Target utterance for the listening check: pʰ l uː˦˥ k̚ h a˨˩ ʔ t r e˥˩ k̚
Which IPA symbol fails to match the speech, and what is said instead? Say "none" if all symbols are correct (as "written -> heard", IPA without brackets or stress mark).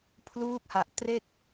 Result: none